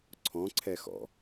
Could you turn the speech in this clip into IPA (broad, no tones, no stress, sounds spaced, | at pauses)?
ǀʰ ɔ̃ ǀʰ ɛ x ɔ̰